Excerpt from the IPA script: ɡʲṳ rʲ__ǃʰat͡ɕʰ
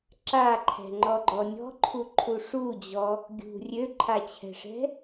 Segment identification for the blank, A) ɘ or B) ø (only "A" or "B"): B